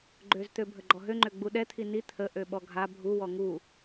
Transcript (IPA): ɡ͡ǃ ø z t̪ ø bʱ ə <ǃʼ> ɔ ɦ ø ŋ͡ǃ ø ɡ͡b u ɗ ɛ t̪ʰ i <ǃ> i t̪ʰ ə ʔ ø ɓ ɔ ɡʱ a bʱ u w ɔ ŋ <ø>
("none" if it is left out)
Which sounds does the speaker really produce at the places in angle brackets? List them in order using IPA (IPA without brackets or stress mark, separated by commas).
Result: ɡ͡ǃ, n, u